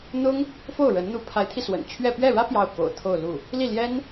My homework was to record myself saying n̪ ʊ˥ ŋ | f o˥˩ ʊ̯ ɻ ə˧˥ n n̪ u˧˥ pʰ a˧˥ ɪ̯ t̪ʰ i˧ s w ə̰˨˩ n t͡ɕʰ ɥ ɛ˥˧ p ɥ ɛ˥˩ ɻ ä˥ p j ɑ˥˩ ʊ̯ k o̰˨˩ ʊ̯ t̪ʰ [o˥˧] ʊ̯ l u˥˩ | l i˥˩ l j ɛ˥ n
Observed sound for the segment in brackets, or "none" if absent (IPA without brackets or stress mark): o˥˧